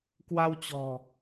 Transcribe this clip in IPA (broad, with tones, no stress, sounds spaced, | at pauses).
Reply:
k w a˧ w t͡ɕ ɔ̤˨˩